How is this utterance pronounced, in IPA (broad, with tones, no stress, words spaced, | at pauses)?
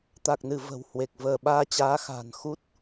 t̪a˨˩k̚nɨ˧˩ və̤˨˩whwe˨˩k̚ vəː˧˩ɓaː˧t͡ɕaː˨˦xa̤ː˨˩n xu˦˥t̚